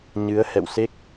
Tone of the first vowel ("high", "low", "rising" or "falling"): rising